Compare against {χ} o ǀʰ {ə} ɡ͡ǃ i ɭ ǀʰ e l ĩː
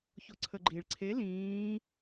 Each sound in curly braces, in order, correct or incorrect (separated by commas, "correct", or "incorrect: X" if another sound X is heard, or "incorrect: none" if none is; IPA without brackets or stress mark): incorrect: ç, correct